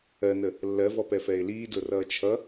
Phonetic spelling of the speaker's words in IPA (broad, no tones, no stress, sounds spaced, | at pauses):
ɜ n ə | lː ɜ v ɔ p ɛ f ɛ ɪ̯ l iː d ʊ r ʌː t͡ʃʰ ʌ